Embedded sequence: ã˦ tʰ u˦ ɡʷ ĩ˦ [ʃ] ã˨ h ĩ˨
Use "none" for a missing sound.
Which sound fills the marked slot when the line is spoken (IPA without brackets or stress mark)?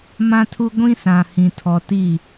s